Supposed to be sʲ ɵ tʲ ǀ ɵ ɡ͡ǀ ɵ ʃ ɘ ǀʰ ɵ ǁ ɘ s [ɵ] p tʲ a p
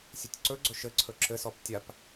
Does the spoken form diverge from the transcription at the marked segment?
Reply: yes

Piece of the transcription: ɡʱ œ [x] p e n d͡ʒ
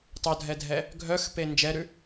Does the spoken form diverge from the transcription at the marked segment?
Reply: no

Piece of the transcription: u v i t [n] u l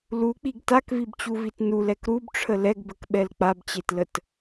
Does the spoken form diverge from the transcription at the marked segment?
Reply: no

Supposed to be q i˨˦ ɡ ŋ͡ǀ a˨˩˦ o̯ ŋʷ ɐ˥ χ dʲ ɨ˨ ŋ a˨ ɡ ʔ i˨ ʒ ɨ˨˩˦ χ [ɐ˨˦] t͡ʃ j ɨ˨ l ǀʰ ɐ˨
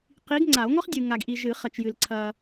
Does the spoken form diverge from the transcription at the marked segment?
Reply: yes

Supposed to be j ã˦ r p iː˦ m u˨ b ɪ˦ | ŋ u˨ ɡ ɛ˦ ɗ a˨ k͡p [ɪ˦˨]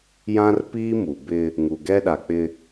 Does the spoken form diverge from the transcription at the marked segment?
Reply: yes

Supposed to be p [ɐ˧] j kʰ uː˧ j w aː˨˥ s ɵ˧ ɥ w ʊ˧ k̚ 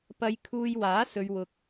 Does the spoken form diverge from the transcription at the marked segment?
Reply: no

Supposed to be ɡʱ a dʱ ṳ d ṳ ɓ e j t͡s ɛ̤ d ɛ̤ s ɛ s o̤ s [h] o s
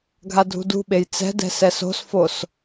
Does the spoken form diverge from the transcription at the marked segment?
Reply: yes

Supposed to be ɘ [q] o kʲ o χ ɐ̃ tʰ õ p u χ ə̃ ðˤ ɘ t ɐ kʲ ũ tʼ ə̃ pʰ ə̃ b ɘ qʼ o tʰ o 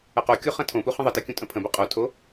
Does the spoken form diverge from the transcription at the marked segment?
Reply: no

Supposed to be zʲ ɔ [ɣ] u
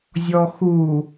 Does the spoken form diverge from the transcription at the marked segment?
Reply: yes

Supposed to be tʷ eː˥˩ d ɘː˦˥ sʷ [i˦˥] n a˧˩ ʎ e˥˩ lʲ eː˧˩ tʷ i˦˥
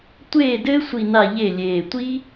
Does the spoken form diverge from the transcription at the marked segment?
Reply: yes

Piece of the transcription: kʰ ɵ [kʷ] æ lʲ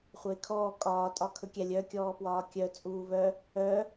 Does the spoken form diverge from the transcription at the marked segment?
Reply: yes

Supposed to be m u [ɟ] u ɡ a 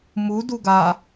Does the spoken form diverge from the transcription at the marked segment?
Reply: yes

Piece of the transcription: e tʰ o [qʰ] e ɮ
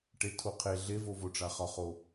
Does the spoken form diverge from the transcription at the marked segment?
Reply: no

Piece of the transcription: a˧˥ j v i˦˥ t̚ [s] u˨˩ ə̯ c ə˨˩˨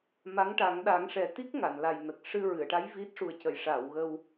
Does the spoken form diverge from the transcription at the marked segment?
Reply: yes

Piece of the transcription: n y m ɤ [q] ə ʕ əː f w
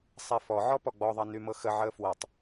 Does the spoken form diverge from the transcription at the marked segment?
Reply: yes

